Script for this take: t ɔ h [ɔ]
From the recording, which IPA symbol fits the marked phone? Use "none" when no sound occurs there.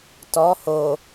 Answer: o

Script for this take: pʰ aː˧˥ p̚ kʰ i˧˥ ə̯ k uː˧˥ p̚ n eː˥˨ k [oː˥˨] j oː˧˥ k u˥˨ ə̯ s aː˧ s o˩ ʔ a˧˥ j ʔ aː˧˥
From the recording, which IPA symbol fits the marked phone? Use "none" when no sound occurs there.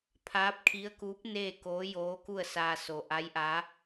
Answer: oː˧˥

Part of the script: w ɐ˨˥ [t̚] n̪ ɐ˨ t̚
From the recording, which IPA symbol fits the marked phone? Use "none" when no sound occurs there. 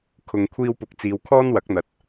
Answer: k̚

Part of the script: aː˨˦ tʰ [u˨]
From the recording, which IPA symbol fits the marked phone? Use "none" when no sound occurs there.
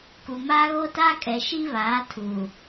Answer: u˨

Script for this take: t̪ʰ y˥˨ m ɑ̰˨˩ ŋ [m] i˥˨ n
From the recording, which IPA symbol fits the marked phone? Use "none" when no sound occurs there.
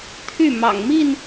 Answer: m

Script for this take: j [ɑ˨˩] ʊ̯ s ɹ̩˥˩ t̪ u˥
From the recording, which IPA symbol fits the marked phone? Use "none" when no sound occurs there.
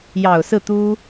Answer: ɑ˨˩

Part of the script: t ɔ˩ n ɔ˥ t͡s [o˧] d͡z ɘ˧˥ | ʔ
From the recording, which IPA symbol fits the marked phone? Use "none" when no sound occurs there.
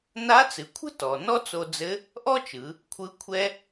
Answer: o˧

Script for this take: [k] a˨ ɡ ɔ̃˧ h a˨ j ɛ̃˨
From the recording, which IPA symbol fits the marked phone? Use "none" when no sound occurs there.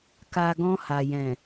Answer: k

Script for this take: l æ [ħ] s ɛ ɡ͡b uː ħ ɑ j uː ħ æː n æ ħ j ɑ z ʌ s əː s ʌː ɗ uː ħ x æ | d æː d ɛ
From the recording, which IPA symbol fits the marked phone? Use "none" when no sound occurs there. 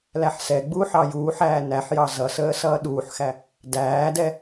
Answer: ħ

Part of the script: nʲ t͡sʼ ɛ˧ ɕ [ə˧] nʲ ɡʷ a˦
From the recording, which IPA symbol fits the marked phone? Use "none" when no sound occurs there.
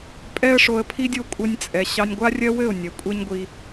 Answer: ɑ˧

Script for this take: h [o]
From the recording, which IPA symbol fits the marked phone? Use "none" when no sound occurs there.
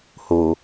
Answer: o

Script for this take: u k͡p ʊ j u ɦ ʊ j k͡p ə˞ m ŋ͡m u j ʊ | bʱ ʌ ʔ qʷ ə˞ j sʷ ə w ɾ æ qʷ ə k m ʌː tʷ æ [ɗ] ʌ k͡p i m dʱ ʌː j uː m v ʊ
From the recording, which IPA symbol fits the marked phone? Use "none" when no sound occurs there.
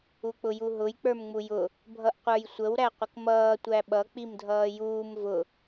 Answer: ɓ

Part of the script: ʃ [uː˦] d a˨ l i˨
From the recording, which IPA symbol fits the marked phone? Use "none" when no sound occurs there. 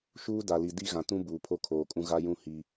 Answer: uː˦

